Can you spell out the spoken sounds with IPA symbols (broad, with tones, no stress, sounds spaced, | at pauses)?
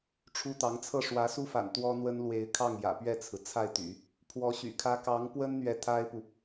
ʈ͡ʂʰ u˥ t̪ ɑ˧˥ ŋ t͡sʰ ɤ˥˩ ʂ w ä˧˥ s u˥ f a̰˨˩ n t̪ w ɔ˥ n̪ w ə˥ n l w e˧˥ ɪ̯ kʰ ɑ˥˩ ŋ j ä̰˨˩ p ɥ ɛ˥˩ t͡sʰ ɹ̩˩ t͡sʰ a˥˩ ɪ̯ t̪ y̰˨˩˦ | pʰ w ɔ˧˥ ɕ y̰˨˩ kʰ ä˥ k ɑ˧˥ ŋ p w ə˥ n n̪ ɥ ɛ˧˥ t̪ʰ a˥ ɪ̯ p u˨